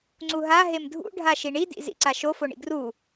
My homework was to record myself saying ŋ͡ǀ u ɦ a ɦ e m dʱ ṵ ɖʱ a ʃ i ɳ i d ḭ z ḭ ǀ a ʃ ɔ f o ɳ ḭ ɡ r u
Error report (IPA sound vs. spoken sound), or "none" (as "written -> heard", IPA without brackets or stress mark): ɔ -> o